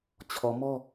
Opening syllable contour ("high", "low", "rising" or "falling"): low